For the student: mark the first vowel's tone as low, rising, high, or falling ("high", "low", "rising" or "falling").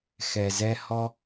low